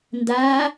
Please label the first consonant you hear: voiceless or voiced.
voiced